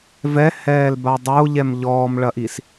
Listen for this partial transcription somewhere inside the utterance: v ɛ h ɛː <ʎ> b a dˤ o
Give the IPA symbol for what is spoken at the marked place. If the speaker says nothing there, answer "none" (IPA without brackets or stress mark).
l